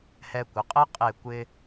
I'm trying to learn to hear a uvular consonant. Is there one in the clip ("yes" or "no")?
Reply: yes